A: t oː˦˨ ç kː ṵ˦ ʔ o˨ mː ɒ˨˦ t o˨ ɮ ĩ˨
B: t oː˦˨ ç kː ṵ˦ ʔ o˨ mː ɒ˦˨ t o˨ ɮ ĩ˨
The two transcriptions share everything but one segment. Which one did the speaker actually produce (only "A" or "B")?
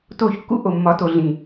A